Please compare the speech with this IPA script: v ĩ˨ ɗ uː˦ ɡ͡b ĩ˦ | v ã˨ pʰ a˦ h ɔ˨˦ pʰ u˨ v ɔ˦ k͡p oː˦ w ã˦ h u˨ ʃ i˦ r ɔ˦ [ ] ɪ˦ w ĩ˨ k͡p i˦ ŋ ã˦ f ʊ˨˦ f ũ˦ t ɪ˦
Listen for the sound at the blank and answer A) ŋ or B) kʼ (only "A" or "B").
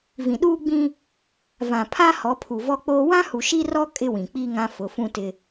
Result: B